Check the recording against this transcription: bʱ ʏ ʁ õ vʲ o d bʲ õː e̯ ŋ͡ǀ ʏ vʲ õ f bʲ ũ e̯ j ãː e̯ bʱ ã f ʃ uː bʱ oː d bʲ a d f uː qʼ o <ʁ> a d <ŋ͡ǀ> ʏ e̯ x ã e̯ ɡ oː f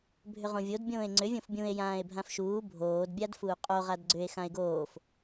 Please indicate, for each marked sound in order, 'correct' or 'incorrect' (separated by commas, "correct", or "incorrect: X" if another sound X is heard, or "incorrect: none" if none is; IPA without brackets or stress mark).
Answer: correct, incorrect: ɡ͡ǀ